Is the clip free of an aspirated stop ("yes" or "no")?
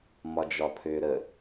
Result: no